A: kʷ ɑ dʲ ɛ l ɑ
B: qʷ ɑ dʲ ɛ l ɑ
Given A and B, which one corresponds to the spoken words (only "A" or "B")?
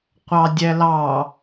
B